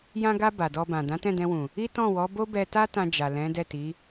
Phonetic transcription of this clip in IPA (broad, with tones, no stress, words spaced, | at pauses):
jã˧ɡa˧ ba˨dɔ˧bã˨ dã˨˦tɛ̃˦˨dɛ̃˧wũ˨ | i˦ tɔ̃˦˨wɔ˨˦ bo˦bɛ˧ ta˦tã˧d͡ʒa˨ lɛ̃˨˦ dɛ˦˨ti˨˦